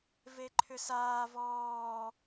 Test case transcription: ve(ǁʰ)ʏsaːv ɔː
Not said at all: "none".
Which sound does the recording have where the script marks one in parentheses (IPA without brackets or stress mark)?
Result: ǃʰ